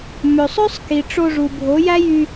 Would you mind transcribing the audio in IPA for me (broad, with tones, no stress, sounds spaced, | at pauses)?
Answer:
m ø˨ sˤ ø˦ sˤ k i˨ ʈ͡ʂ o˧ ʐ u˨ bʱ o˨˦ j æ˦ j y˧